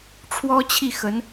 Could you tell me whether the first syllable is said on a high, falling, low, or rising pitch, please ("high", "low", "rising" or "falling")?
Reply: high